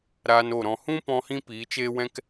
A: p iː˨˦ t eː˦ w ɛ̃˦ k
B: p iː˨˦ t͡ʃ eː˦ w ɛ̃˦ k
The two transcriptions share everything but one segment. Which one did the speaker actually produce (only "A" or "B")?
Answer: B